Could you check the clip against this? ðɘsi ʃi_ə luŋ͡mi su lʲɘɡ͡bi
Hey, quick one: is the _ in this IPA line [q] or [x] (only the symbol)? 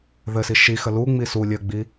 x